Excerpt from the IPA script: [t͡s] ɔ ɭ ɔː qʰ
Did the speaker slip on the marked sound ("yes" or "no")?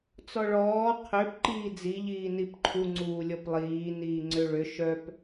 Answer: no